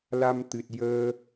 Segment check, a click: absent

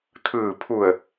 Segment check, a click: absent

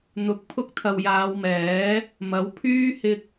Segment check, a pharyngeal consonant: absent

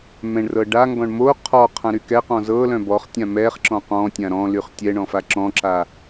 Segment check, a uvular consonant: present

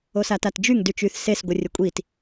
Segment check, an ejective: present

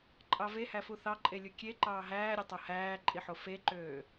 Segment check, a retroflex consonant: absent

